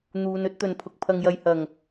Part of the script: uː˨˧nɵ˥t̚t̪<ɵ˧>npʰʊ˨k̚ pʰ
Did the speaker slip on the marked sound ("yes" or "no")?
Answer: yes